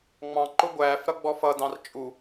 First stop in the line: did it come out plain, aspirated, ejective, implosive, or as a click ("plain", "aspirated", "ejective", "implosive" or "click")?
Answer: click